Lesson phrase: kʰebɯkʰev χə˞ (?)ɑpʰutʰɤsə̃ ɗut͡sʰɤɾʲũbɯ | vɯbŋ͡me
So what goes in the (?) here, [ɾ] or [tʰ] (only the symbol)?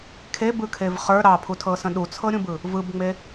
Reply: ɾ